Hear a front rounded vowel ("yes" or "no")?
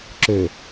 yes